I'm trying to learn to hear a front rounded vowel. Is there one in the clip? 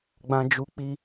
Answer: no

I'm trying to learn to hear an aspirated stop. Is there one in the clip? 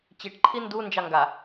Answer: yes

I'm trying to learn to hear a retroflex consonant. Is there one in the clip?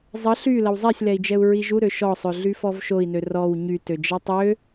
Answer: no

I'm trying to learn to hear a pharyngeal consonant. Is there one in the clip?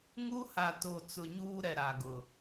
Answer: no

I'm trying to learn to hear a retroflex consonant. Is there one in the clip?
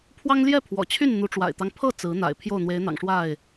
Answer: yes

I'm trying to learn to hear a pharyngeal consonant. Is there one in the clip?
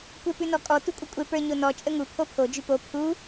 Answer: no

